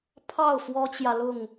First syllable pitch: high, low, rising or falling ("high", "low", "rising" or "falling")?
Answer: falling